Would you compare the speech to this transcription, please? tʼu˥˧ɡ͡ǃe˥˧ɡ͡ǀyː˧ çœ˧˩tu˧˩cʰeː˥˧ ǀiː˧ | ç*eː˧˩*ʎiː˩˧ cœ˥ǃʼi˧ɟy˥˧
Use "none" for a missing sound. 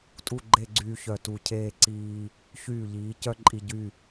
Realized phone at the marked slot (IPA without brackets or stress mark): yː˧˩